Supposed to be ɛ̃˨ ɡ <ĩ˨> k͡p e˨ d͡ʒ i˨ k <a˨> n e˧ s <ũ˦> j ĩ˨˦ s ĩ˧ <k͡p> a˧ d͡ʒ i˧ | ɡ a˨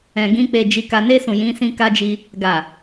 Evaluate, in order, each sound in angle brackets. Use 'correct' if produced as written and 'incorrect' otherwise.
incorrect: ĩ˧, correct, incorrect: ũ˨, incorrect: k

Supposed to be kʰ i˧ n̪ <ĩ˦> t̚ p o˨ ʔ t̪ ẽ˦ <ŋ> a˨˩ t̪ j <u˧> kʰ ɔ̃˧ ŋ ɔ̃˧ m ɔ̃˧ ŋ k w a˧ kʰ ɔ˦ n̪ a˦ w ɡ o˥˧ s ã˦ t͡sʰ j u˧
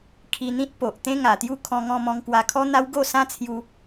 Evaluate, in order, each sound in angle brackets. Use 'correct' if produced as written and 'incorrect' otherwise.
correct, correct, incorrect: u˥˧

